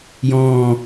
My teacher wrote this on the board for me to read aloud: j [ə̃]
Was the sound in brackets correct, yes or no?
no